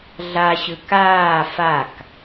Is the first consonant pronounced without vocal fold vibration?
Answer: no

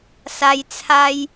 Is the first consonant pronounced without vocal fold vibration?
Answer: yes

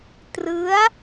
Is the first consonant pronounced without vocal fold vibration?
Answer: yes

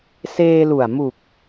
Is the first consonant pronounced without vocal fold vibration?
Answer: yes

